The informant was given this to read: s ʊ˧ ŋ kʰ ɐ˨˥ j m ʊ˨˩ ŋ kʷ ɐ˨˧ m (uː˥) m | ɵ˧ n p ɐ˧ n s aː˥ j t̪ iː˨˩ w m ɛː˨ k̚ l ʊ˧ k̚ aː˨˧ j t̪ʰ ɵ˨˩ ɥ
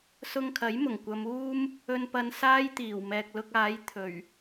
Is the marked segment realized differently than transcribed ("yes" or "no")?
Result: no